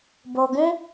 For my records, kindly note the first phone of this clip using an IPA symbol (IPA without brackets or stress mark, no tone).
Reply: b